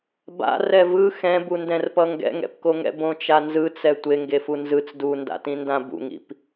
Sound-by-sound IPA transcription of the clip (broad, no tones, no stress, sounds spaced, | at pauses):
b a̰ r ɛ v ɯ x ɛ̃ b u n d ɛ̃ r p ʌ ŋ ɡ ɛ̰ ŋ ɛ̰ p k o ŋ ɛ̰ b õ t͡ʃ a n z ɯ t͡s ɛ tʷ e ŋ ɡ e f u n z ɯ t͡s d u n d a̰ t ĩ n d ã b ṵ ŋ ḭ p